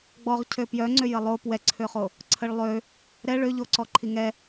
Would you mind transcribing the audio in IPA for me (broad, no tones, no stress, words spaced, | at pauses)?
ɡ͡bɔʁ cʰøpjœŋ͡ǀø jəlˠo pwɛǀʰøχo | ǀʰəɭlˠø | ɾɛ ɭøʎoǀɔ ǃʰiŋɛ